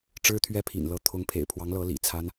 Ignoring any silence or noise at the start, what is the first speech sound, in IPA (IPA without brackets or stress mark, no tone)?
ʈ͡ʂ